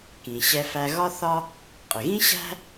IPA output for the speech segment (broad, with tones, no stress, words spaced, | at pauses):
kĩ˩ɕɛ˧fæ˧ ɣɒ˥θɒ˥ | qʼɪ˩ɣĩ˥ɕæ̤˥